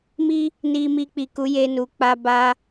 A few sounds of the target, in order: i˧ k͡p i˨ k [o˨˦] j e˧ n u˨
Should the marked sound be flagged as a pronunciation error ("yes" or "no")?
yes